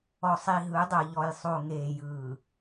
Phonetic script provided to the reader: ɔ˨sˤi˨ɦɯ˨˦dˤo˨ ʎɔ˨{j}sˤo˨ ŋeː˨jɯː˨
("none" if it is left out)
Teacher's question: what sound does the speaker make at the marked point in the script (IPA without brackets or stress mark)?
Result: j